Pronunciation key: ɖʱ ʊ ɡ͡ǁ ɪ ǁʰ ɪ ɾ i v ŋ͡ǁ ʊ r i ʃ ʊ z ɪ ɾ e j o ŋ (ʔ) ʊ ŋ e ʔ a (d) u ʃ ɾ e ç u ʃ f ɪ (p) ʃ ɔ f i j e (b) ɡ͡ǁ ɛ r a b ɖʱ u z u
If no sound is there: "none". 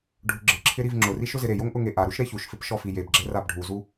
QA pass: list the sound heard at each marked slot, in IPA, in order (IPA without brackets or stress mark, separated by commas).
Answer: ʔ, ɾ, p, b